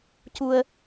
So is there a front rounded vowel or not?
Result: no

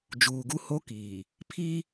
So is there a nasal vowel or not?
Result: no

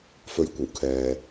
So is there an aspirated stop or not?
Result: yes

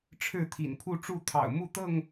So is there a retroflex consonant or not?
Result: yes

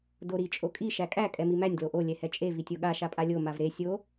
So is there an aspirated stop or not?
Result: no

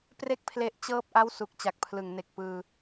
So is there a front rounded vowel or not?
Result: no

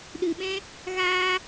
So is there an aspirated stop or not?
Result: no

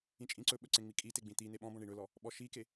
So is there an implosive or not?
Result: yes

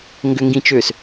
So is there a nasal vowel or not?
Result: yes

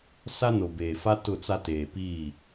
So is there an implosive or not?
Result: no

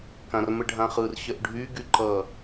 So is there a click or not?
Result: yes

